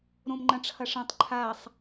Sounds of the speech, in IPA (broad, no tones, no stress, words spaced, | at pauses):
ɾõmŋ͡ǃɐ̃ʈ͡ʂʰɐʂɐ̃tˤ ǃʰasˤ